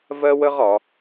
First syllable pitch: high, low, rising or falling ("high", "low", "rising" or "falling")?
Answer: high